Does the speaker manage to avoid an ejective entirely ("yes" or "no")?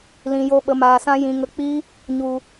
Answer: yes